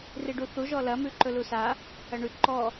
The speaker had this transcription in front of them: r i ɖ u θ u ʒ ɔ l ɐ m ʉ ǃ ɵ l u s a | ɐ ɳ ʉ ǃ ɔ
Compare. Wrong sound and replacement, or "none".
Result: none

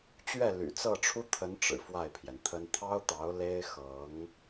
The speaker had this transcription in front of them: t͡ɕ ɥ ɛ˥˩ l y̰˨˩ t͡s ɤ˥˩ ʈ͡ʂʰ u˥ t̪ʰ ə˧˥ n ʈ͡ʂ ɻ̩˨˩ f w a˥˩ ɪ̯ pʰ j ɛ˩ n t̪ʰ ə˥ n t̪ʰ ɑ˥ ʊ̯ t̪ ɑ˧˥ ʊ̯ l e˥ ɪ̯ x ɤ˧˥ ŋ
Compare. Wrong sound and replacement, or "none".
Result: none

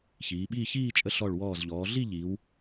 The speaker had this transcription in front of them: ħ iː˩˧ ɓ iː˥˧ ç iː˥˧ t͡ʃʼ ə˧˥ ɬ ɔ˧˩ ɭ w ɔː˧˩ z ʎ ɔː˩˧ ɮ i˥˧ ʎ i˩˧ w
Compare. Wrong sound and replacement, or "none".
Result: ħ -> ç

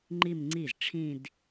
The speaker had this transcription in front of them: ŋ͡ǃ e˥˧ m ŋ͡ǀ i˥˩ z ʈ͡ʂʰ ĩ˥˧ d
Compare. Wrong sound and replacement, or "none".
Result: e˥˧ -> i˥˧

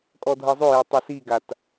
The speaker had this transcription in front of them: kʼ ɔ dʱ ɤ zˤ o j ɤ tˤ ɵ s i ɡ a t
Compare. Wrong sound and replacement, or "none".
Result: ɵ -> ɤ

